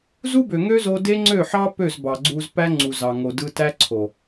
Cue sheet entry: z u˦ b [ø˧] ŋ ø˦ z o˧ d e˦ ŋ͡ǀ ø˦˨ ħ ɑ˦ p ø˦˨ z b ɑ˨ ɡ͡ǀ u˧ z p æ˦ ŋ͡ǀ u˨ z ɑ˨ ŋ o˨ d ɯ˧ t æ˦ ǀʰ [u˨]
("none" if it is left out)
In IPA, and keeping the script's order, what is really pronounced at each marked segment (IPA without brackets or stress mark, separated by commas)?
ø˨, o˨